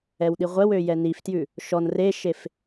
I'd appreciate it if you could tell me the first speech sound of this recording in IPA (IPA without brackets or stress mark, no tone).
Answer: ɛ